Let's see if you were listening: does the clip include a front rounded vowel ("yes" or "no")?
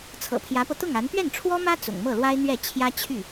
yes